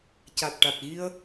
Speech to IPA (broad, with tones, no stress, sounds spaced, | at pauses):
c a˨˩ t̚ ʈ a˨˩ t̚ ɣ i˧ ə̯